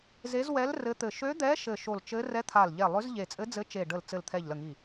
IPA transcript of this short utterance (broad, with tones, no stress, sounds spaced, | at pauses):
z e˧˥ z w ɛ˧˥ l r ɘ˧˥ t̪ ɘ˧˩ ʃ ø˧˥ d̪ ɛ˧˥ ʃ ɘ˧˩ ʃ o˧˩ l t͡ʃ ɘ˧˥ r ɛ˧˥ t̪ʰ a˧˩ l ʎ ɛ˧˩ lˠ ø˧˥ z ʎ e˧˩ t͡sʼ ɘ˧˥ d͡z ɘ˧˥ t͡ʃ e˧˩ ɖ ə˧˩ l t͡s ɘ˧˩ l t̪ʰ ɛ˧˩ ʎ l ə˧˩ ŋ i˧˩